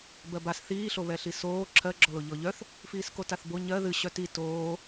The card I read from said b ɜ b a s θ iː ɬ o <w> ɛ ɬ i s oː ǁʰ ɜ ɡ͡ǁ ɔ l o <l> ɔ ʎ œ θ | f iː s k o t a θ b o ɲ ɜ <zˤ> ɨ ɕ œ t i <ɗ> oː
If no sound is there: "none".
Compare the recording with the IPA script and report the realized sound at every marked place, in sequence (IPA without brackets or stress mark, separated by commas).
β, ʎ, ð, t